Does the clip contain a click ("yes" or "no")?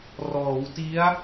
no